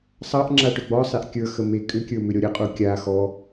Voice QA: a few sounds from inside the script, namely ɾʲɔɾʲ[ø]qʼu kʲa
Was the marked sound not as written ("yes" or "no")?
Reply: yes